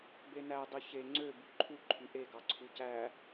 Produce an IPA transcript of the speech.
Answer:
b e n æ dˤ y ç e ŋ͡ǀ ø b y ǃʰ u ǃʰ y ʔ e ɡ ɑ ǀʰ u c æ

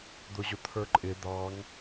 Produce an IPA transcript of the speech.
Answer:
d̪ ʊ ʑ ʊ t̪ʰ ə˞ ǃʼ ɪ d̪ ɑ ŋ

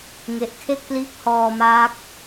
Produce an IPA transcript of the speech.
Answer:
ŋ e˦˥ ʔ kʰ e˥˩ k̚ p l iː˦˥ k̚ h ɔː˧ m aː˦˥ k̚

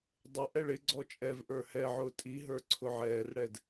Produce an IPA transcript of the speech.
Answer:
dˤ ɪ ʔ ɛ ɭ ɪ ɡ͡ǀ ɔ t͡ʃʼ ɛ v ʔ ə˞ h ɛ ʕ ʊː tʼ i ɦ ə˞ ǀʰ ʊ ʕ ɛː r ɽ ɛ d

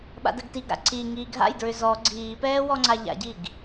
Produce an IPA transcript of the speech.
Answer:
ɓ a̰ d ə ɡ t i ɡ ɾ a̰ ǀ i ŋ iː ɡʱ a̰ j d ɹ ʏ z ɔ ɡ͡ǀ iː p ɛː w ɔ ŋ͡ǀ a ʎ a̰ ɟ i ɡ

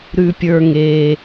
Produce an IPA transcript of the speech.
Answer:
ɾ ʉ˨ pʲ ə˞˨ ŋ e˨

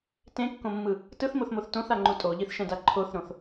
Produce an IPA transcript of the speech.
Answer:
t ẽ kː õ mː ɯ | t ɯ θ m o θ m o θ t õ θ a ŋ͡ǃ u tʼ o ʎ i θ ʃ ɛ̃ d a ǃʰ o θ ɾ õ θ

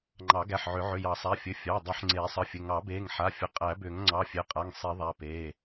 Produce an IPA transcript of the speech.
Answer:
ŋ͡ǃ ɑ˨˩˦ ɡ æ˩˧˩ ħ ʕ ʏ˨˩˦ ʕ ʏ˩˧˩ j ɑ˨˩˦ sˤ æ˩˧˩ fʲ ɘ˩˧˩ fʲ ɑ˩˧˩ dˤ i˨˩˦ ħ ŋ͡ǀ eː˨˩˦ sˤ ə˩˧˩ fʲ ɘ˩˧˩ ŋ ɑ˨˩˦ b eː˩˧˩ ŋ ħ a˩˧˩ fʲ ə˩˧˩ qʼ æ˨˩˦ b ʏː˨˩˦ ŋ ŋ͡ǀ ɑ˩˧˩ fʲ e˩˧˩ qʼ a˩˧˩ ŋ sˤ i˨˩˦ ðˤ æ˩˧˩ p eː˩˧˩

